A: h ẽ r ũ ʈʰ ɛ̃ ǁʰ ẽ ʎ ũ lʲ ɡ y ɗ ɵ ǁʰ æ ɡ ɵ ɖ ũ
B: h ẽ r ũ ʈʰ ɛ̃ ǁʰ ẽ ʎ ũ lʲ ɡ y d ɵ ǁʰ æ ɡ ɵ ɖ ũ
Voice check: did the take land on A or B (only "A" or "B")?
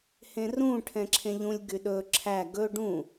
A